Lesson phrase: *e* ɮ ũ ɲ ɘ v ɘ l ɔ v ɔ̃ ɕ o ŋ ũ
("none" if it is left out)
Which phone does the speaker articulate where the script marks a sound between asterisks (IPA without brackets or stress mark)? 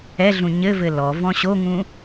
ɛ